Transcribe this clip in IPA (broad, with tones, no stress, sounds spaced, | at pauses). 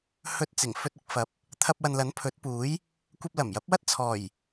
h ɵ˧ t̚ t͡s ɪ˨˩ ŋ f ɵ˧ t̚ ɪ˨ k̚ f ɐ˨˥ p̚ | t̪ʰ ɐ˧ p̚ w ɐ˨ n l ɐ˨˥ n pʰ ɵ˨˥ t̚ p uː˨˥ j | kʷ ɐ˧ p̚ l ɐ˨˩ m j ɐ˨˥ p̚ w ɐ˥ t̚ t͡sʰ ɔː˨˩ j